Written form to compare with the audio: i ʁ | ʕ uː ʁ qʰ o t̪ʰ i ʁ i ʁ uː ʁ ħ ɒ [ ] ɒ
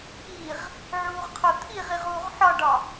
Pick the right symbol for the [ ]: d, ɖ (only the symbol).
ɖ